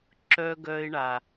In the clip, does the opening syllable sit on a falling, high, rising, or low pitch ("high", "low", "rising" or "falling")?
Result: high